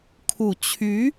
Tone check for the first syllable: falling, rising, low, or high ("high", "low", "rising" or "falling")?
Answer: low